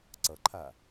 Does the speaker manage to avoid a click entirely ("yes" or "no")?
no